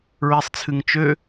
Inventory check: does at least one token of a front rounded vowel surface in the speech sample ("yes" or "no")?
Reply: yes